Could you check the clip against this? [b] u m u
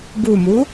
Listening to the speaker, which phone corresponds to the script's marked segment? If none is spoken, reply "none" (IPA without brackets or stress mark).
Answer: b